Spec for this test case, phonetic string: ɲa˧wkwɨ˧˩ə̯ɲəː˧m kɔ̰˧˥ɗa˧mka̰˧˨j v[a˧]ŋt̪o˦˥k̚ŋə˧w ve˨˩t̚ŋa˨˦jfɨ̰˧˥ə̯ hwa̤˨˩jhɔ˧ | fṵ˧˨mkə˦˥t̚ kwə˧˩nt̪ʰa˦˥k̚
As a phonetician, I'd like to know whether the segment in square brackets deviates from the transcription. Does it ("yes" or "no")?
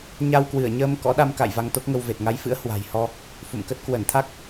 no